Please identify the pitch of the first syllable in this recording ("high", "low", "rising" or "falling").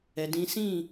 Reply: low